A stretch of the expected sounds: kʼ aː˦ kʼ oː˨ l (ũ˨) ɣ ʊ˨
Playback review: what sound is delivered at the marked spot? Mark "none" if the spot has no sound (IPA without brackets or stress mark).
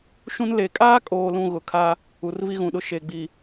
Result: ũ˨